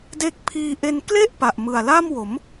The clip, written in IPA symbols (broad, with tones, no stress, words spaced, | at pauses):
de˦˥k̚pʰiː˧ʔe˧n kle˥˩ʔ pa˨˩ʔmɯ˨˩a̯la˥˩mwo˩˦m